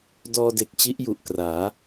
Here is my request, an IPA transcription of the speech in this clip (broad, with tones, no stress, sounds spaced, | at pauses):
d ɔː˧ d e˨˩ k̚ t͡ɕ i˦˥ ʔ j u˨˩ ʔ k r aː˩˦